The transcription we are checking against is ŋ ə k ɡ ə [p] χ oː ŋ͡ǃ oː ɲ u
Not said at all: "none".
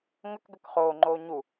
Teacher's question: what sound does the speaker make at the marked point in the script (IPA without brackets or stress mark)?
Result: k